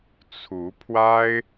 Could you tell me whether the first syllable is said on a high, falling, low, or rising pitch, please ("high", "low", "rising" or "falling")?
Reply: rising